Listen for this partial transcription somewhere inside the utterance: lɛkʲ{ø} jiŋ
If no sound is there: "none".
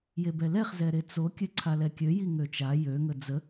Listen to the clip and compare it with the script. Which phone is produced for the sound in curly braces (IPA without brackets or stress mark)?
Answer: ø